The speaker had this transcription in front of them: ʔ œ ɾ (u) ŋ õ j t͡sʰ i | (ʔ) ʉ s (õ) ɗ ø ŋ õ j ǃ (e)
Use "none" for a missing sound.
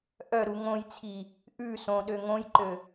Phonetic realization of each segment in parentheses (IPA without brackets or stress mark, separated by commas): u, ʔ, õ, ø